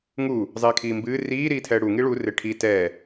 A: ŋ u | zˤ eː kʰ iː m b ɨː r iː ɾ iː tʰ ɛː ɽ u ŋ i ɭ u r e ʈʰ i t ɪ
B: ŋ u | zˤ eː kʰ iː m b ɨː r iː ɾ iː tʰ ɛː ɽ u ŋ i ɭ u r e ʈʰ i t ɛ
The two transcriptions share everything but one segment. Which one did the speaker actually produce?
B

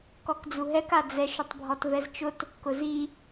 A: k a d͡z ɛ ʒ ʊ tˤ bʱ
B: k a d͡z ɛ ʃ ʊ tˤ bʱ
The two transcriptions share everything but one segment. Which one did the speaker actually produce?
B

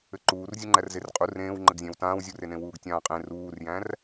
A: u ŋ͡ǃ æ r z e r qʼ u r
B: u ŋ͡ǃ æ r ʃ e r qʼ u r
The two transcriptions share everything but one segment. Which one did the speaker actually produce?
A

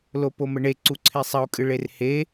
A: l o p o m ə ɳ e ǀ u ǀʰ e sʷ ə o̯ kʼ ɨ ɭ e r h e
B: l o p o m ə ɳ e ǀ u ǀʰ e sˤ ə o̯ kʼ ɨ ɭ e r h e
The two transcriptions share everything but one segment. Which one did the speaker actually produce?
B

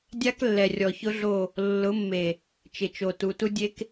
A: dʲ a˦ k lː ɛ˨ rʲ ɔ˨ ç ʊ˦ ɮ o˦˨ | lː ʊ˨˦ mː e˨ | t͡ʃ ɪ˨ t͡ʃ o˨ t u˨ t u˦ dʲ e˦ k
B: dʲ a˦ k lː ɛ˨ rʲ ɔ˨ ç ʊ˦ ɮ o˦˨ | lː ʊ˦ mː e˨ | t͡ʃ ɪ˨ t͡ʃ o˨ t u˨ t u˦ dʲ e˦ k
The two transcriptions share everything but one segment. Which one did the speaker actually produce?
A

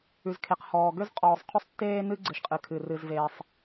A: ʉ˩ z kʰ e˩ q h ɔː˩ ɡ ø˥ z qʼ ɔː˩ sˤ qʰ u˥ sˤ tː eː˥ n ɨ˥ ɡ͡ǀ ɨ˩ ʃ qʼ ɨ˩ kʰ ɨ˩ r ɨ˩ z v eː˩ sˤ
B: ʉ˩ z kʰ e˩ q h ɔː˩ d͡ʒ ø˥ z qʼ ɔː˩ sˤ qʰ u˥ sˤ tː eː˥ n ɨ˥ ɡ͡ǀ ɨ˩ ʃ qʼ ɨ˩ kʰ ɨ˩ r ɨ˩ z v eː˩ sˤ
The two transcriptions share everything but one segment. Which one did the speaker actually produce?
A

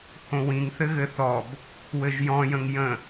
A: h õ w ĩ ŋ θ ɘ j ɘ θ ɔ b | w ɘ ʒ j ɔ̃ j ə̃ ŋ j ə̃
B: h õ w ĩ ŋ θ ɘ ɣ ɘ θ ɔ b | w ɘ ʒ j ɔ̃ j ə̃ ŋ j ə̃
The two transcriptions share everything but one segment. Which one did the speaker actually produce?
B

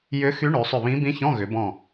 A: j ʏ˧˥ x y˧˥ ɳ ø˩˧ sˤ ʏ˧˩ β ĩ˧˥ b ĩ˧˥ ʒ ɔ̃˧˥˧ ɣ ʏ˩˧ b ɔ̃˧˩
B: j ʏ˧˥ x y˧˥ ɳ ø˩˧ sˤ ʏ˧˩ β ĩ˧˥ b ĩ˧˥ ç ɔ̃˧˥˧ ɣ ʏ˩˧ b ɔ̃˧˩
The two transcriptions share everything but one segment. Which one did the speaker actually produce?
B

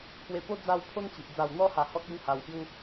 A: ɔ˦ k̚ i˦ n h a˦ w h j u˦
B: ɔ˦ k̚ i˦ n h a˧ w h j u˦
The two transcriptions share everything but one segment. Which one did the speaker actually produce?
B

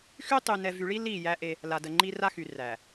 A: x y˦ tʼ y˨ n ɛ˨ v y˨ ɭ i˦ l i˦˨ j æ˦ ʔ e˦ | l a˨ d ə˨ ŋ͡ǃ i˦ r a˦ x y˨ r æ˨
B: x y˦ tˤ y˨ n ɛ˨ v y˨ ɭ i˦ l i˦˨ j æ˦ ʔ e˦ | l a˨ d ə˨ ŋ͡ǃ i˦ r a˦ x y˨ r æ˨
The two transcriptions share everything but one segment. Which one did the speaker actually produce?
B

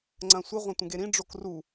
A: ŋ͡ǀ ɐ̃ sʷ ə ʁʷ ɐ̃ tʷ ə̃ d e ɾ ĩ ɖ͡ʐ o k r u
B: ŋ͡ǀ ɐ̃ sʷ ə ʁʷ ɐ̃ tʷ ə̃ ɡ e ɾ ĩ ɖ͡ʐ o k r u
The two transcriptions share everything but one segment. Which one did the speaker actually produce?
B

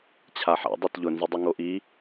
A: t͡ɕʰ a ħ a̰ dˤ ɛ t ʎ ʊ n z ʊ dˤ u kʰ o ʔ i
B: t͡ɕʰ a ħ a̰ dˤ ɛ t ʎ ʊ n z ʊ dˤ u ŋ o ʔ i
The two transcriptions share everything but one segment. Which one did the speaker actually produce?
B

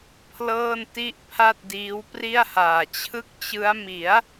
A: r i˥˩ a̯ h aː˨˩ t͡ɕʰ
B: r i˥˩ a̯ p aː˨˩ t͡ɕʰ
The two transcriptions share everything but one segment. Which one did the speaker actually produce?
A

